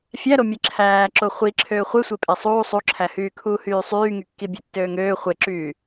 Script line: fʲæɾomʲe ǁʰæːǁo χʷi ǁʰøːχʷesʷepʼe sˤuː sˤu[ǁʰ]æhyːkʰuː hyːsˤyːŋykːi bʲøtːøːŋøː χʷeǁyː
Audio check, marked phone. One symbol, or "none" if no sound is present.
ǁʰ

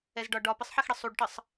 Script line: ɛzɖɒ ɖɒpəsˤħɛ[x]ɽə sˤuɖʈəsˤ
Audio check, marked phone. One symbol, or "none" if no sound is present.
x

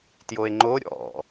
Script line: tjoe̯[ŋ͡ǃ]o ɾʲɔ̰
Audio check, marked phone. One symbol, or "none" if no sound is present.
ŋ͡ǃ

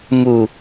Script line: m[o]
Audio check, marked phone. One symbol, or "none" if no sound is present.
u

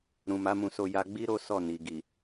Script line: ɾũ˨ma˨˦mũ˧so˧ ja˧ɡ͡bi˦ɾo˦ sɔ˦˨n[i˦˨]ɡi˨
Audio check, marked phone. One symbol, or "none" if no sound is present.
i˨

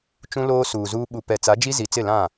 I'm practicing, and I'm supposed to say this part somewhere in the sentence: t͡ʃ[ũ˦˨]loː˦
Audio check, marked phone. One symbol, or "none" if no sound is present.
ũ˦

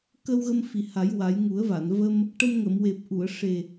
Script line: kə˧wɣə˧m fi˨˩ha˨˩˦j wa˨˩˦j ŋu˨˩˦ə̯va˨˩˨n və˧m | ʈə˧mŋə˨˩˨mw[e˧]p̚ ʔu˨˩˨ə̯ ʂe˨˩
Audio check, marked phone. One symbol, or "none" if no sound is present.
e˨˩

